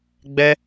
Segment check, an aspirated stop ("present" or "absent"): absent